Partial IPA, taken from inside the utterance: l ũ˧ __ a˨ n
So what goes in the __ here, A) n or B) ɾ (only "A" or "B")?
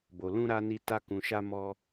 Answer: B